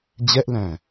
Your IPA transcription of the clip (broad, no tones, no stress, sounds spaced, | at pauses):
d͡ʑ ɛ ʔ l æ̃ː